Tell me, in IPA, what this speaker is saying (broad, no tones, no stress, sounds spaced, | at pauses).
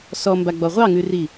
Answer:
s ɔ m b a ɡ͡b ɔ ʁʷ ɑ ŋ ʉ r i